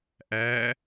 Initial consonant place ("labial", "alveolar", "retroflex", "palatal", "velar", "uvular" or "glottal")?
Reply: glottal